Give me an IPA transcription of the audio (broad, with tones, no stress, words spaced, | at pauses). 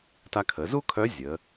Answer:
ta˧kʰə˩˧zu˥kʰœ˧˥ zʲə˩˧